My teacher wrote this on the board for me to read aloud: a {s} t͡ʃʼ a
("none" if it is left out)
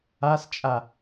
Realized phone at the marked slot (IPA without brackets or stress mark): s